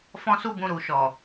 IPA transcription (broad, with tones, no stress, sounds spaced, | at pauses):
f ɔ̃˧ s u˧ b ũ˨ ɾ u˨ ʃ ɔ˨